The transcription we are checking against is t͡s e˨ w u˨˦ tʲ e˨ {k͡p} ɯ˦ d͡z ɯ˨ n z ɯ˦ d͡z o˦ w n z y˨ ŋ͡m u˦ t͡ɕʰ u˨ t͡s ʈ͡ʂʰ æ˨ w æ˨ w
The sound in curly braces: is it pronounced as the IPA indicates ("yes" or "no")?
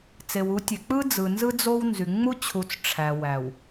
yes